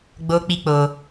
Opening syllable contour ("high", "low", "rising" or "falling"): high